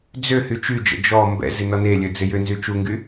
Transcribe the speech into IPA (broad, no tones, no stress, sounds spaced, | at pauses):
d͡z ø h y t͡ʃ y d͡ʒ ə̰ d͡ʒ ɔ m b ɛ̰ z ɪ n ɔ n e lʲ ø d͡z ɪ j ʏ n z y t͡ʃ u ŋ ɡ y